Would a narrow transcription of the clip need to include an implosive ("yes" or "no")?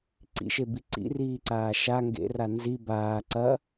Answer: no